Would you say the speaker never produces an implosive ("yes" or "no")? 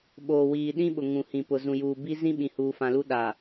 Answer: no